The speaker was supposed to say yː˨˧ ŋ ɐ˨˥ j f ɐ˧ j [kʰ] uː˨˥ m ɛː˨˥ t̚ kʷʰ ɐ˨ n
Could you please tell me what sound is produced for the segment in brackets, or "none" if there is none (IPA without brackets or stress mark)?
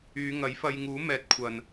ŋ